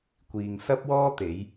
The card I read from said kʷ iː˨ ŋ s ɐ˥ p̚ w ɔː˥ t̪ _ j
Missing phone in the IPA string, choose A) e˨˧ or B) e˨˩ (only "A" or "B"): A